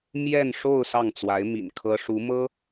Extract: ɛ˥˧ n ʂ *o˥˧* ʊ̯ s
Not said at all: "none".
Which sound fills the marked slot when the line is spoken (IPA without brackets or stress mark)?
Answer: o˥˧